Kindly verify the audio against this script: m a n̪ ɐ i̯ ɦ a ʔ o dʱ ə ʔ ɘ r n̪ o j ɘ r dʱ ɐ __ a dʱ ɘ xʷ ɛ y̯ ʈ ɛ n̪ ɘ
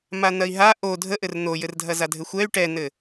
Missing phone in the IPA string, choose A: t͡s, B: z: B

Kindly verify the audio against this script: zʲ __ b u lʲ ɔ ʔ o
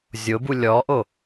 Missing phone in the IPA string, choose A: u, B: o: B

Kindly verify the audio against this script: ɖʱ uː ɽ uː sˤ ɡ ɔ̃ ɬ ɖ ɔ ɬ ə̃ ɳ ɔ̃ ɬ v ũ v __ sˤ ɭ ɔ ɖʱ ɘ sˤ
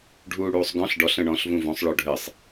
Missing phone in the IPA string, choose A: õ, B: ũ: A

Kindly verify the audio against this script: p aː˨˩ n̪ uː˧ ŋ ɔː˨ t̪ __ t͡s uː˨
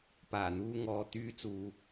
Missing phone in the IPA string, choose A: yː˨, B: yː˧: B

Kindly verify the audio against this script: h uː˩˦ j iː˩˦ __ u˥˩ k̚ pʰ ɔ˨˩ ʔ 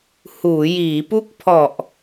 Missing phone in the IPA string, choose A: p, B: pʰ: A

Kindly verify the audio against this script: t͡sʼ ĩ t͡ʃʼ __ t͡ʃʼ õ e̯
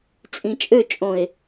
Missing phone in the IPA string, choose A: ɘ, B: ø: B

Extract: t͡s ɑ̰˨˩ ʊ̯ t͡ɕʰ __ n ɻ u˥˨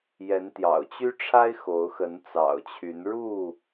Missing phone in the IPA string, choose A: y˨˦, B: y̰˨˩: A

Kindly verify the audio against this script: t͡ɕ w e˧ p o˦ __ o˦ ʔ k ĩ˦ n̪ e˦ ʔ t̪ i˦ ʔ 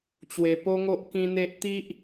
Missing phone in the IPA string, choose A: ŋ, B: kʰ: A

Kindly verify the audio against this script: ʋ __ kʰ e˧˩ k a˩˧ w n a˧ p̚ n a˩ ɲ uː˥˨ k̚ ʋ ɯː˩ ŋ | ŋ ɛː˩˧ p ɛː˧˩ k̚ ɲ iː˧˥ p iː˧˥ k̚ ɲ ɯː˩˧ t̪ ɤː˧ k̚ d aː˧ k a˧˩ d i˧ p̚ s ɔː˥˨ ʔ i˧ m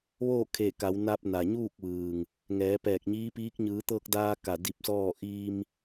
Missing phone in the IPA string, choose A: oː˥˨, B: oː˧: A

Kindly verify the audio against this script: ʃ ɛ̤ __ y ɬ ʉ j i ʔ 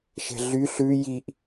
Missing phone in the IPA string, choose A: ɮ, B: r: A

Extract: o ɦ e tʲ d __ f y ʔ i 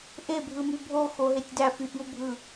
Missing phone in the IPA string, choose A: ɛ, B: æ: B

